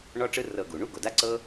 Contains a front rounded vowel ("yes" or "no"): no